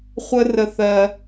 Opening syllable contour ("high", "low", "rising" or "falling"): high